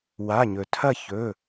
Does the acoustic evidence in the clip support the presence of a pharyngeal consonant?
no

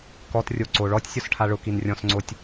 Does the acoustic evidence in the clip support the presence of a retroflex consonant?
yes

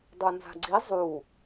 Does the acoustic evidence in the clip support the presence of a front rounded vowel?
no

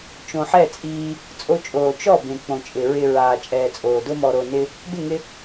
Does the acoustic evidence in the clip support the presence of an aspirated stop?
no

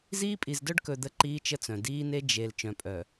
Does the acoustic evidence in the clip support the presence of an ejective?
yes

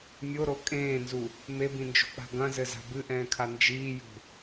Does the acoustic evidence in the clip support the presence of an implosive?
no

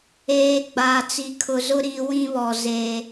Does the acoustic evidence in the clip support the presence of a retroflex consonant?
no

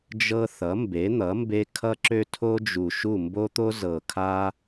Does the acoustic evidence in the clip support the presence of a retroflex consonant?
no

